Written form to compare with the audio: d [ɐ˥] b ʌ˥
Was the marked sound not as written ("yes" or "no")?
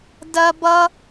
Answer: no